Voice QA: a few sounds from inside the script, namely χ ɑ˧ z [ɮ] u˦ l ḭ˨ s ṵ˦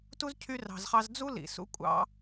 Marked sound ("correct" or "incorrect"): incorrect